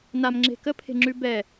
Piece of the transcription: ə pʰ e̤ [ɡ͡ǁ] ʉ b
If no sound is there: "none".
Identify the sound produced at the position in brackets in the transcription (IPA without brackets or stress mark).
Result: ŋ͡ǁ